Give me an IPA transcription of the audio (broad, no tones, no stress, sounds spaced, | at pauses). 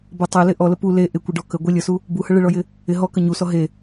b ə tˤ e l ɪ ʔ ɔ l ə p u l e ʔ ɪ kʷ ɪ ɖ ɔ k ə ɡʷ ɪ lʲ ə s u | b u h ə ɭ ɪ ɭ ɔ j ɪ | ɪ ɦ ɔ k ə ɲ u s ɔ ɦ e